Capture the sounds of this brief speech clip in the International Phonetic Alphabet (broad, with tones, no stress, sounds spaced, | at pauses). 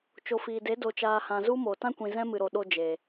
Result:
t͡ʃ o˨ f iː˨ d e˨˦ d o˨ t͡ʃ aː˨ h ã˨ z u˦ m o˨ t ã˦ kʷ ĩ˨ z ɛ̃˦ m ɨ˨ ɾ o˨ ɗ o˧ d͡ʒ e˨